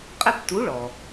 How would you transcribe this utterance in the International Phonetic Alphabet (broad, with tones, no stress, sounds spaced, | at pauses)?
qʼ ɛ˥˨ p t u˨˥ ɭ ɔ˩